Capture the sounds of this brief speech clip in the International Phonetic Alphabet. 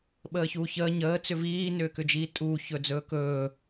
ɓ əː ç uː ç əː ɲ əː t͡s ʏ v iː n ʏː k ʏ d͡ʒ iː tʼ uː ç ɵ d͡z ɵː k ɵː

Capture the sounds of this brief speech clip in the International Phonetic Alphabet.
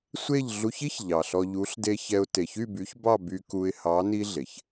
sʷ e˦˨ ʎ ɮ u˧ ç i˦ ç ʎ ɑ˨ ɬ ɔ˧ ʎ u˨˦ ɬ d e˧ ç ɛ˧ ʊ̯ t e˨ ç y˦˨ b y˨˦ ç b ɑ˦˨ b y˧ k u˧ ɪ̯ h ɑ˨˦ n i˦ ɮ e˨ ç

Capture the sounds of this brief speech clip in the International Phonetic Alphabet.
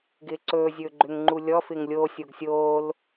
ɡ ɪː ǀ ɵː zʲ ɵː ɡ͡ǃ ʏ ŋ ŋ͡ǃ u lʲ ɔ f ɪ ŋ lʲ o sʲ o ɡ sʲ oː l

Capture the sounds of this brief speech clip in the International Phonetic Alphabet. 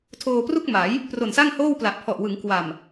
tʰ oː˧ p r u˥˩ k̚ m a˩˦ j | p r o˨˩ n s a˥˩ ŋ h oː˥˩ w p l a˨˩ ʔ pʰ ɔ˨˩ ʔ w ɯ˩˦ ŋ k w a˨˩ m

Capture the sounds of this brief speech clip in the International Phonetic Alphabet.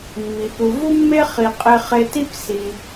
mː i˩ p u˩ v u˥ mː e˥ χ i˩ qʼ e˧ χ e˧ t i˥ p s i˩

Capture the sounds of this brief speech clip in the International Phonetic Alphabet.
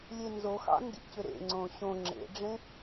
lʲ e n z o x ɑ̰ n d ḭ c ʏ ɾ ḛ ŋ͡ǀ õ ɕ õ ŋ͡ǁ ḛ ɖ͡ʐ ẽ

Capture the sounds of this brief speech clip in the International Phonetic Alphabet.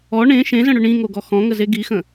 ɔ ɳ ẽ ʃ ẽ z ə̃ ɽ ʏ ɳ ĩ ŋ o ɡ ɔ x ɔ̃ ŋ ə z e ɡ i x ə̃

